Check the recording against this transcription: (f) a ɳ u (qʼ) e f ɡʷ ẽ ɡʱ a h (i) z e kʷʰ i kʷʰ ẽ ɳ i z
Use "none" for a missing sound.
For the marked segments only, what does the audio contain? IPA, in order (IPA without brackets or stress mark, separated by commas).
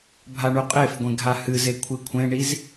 bʱ, qʼ, ɨ